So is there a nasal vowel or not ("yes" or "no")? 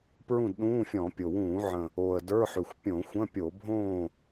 yes